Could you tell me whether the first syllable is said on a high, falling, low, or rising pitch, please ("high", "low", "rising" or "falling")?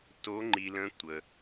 rising